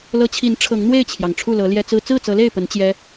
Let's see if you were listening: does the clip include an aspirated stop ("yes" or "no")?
yes